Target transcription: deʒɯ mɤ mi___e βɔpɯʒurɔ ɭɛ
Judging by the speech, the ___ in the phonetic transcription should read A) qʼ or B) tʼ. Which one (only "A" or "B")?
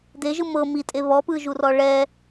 B